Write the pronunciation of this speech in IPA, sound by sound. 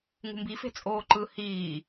ŋ ṳ m b i f e̤ t͡sʼ oː ǃ ɯ h iː

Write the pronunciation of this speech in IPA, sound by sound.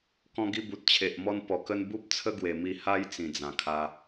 k ɔ̃˧ ɡ i˧ b u˨ t̚ t͡ɕʰ e˨ ʔ m ɔ˧ n p ɔ˨˩ k ə˧ n b u˦ p̚ t͡sʰ ə˦ ɡ w e˨˩ m i˧ h a˦ j t͡s ĩ˨˩ d͡z ã˨˩ kʰ a˧

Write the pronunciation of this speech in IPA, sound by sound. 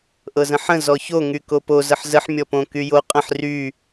ʔ ɤ z ə̃ ħ ə̃ z ɔ ç o ŋ y k o p o z ə ħ z ə ħ mʲ ɔ p õ k y j o qʼ ə̃ ħ r y

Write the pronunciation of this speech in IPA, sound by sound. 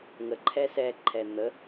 ŋ ə ǃʰ ɛ s ɛ ǃʰ ɛ n̪ ə

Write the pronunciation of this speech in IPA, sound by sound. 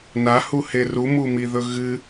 n a h u h e r u m u m i ð ɵ ɣ ɨ

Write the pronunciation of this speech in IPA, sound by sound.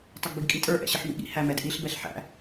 tˤ ɪ ɡ b i ɡ kʼ i tʼ ə˞ ʔ ɛ̰ ɕ ɪ ħ m ḭ ɠ ḭ h æ m ɛ d ʔ i ɬ b ɛ ɬ ħ æ̰

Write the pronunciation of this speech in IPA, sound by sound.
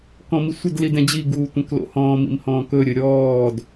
k ɔ̃ m i sʷ ə d l i d ɛ̃ d͡ʑ i ɡ uː tʷ ɛ̃ k l o̰ h ɔ̃ː m ḭ m h ɔ̃ː k ɵ ɾʲ ɵ ɾʲ ɔː d

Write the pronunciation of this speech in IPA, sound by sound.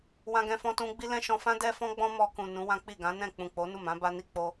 w ã˧ ɡ ɛ̃˧ f ɔ̃˧ t ũ˧ ɡ͡b i˦ l ɛ̃˦ ʃ ɔ̃˧ f ã˦ d ɛ˦ f ɔ̃˦ ɡ͡b ɔ̃˦ m ɔ˧ k ũ˨ n ũ˨˦ w ã˦ k͡p i˦˨ ɡ ã˨˦ n ɛ̃˦˨ k͡p ũ˨ k͡p o˨˦ n u˦˨ m ã˨˦ b a˦ n i˦ k͡p o˦

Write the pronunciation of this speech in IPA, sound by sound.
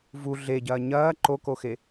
v u ɮ e ɟ ɐː ɲ ɐː ǃ o k o x e

